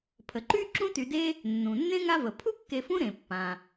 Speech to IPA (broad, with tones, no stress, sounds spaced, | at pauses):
pʰ ə˩ ǃ y˥ ǁ ũ˥ t y˨ d e˥ | nː ũ˩ nː ẽ˥ ŋ a˦ v ə˩ pʰ u˥ kː e˨ f ũ˦ ɾ ẽ˩ pː ã˩